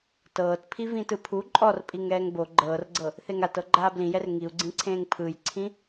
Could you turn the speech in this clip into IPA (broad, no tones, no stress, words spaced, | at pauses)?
tɤːt pʰivĩtɯpʰu ǃʼɔrpʼiŋ ɛːŋbo ɡ͡ǃɤːrɡ͡ǀɤ | θeŋatɤ ɡ͡ǃaːblĩjɛr ŋiu̯ɡ͡ǀĩǀʰẽːŋ pʰɯjǀʰĩ